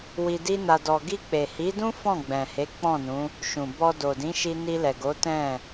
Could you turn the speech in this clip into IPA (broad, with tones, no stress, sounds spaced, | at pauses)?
w i˧ d i˦ n a˧ d ɔ˧ ɡ i˧ k͡p e˨ h i˨˦ d ũ˦ f ɔ̃˦˨ ɡ͡b ɛ̃˨ h e˨˦ k͡p ɔ̃˦˨ n ũ˨˦ | ʃ ũ˨ b ɔ˧ d o˨ d ĩ˨˦ ʃ i˧ n i˧ l ɛ˨ ɡ o˨˦ t ɛ̃˦˨